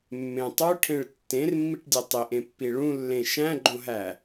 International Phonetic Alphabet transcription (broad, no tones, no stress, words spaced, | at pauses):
mːẽtˤoʈʰẽɭ tːẽrmːiʈdʲe tˤiʔẽpːi ɭũlːẽ ʃæ̃ɡ͡ǃõɦæ